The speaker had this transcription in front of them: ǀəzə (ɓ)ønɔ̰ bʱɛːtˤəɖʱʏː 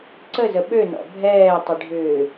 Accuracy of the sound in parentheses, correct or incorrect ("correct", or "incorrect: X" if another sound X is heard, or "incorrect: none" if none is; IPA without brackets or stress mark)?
correct